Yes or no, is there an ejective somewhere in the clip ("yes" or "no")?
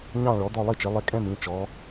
yes